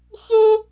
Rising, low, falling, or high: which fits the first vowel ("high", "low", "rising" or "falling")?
high